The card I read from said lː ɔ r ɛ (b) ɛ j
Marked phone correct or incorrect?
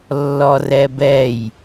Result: correct